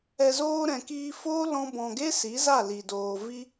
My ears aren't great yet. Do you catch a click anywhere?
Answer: no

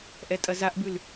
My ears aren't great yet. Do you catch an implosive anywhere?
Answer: no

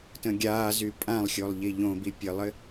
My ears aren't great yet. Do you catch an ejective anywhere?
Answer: yes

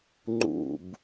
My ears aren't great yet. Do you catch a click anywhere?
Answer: yes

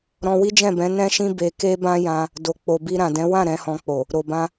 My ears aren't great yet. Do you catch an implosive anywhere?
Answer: no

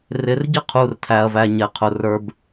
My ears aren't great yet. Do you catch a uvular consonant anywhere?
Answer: yes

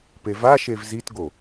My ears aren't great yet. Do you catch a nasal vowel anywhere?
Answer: no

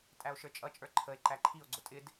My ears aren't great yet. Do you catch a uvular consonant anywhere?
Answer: no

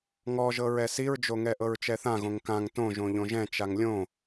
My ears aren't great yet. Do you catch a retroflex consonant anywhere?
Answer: no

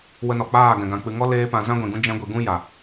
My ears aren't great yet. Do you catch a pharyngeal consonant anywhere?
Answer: no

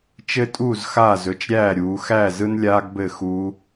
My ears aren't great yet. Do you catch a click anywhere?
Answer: no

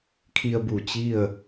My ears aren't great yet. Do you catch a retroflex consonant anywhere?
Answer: no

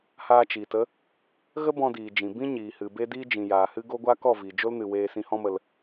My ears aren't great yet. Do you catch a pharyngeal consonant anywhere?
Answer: no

